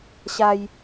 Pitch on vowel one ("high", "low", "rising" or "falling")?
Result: high